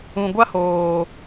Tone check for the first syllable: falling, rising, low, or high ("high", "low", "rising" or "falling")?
low